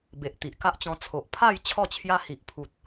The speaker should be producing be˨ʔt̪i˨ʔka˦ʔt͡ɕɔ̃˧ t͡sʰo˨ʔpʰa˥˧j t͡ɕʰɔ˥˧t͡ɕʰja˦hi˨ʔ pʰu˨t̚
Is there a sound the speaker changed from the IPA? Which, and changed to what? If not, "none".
none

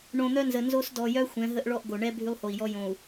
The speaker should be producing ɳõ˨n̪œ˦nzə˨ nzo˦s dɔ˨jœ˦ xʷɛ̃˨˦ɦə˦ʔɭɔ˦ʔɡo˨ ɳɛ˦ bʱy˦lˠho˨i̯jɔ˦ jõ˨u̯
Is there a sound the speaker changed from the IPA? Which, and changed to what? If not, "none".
none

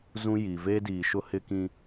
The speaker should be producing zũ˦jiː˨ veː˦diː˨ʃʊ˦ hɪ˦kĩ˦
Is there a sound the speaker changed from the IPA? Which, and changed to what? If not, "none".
none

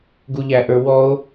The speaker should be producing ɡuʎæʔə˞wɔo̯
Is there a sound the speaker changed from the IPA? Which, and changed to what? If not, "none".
none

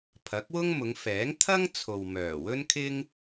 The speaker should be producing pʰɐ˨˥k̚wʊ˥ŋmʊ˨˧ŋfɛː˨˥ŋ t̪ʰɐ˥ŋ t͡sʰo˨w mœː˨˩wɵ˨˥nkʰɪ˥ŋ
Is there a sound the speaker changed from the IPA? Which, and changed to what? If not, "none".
ɵ˨˥ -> ɵ˥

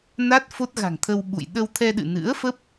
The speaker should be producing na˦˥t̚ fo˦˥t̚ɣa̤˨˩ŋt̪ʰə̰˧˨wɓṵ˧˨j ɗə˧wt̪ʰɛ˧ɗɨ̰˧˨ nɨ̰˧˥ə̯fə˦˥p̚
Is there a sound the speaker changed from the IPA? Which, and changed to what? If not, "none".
ə̰˧˨ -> ə˧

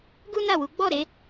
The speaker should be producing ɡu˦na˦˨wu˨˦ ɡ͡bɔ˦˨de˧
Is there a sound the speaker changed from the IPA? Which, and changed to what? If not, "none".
d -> ɾ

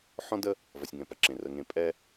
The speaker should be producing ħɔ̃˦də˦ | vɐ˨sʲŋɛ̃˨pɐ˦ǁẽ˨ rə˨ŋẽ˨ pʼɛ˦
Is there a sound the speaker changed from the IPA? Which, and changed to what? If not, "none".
none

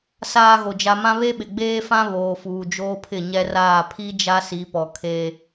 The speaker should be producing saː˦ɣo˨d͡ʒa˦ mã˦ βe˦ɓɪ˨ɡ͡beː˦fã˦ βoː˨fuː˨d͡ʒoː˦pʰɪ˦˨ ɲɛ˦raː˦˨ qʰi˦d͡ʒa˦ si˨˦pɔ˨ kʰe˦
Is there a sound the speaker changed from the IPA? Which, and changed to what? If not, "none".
qʰ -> pʰ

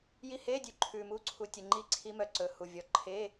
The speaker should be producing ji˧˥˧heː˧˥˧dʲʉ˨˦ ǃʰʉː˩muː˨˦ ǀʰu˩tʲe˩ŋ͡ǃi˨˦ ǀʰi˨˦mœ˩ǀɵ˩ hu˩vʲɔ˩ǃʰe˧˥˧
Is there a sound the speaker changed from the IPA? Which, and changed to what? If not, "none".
none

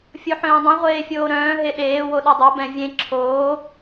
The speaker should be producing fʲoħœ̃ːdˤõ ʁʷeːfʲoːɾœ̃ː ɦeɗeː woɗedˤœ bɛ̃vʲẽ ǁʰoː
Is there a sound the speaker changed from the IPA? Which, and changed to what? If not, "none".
none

